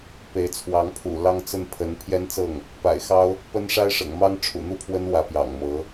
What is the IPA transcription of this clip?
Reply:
pe˧˥ɪ̯t͡sʰwɑ˧˥ŋ pʰṵ˨˩lɑ˥ŋt͡sə˥˩n pʰə˧˥n pʰjɛ˥nt͡sɤ˥˩ŋ | pa̰˨˩ɪ̯xɑ˥ʊ̯ | pə˥n ʂa˥ɪ̯ʂɤ̰˨˩ŋ mɑ˥ŋʈ͡ʂʰṵ˨˩n̪u˥˩pʰwə˥n wä˧˥pjɑ̰˨˩ŋmɤ˧˥

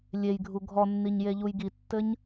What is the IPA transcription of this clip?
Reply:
lʲejɡʱu ɡʱɔnːiɲjeʎuj ɡitːɘɲ

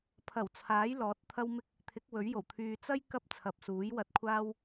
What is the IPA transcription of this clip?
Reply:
pʰɐ˨˩wt͡sʰaː˨˥j lɔː˨˥t̚t̪ʰɐ˥wmɪ˥k̚ | t̪ʰɪ˨˥k̚wɵ˨˥ɥjo˨˩w t̪ʰyː˨t͡sɐ˥j kɐ˥p̚t͡sʰɐ˨p̚suː˨˥j wɐ˧t̚kʷʰaː˥w

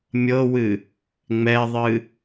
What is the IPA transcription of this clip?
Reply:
mʲɤwɨ | ŋ͡mɛðˤɨ

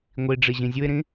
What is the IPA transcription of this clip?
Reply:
ŋʷiɖ͡ʐi ʑĩzʲuɪ̯ɾĩ

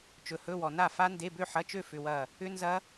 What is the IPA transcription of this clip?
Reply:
t͡ʃɵ˨hɵ˧˥˧wɔ˨ na˥˨fa˦˥ nde˧˥˧bø˥˨ħɐ˧˥˧t͡ʃø˥˨ fʏ˧˥˧wɐ˥˨ | ʏ˦˥nzɐ˦˥

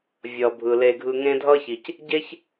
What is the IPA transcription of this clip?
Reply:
vʲʌ˩bʱɯ˩le˨ ɡʱɯ˨ŋẽ˦dʱʌ˥çi˩c | ɟe˥ç

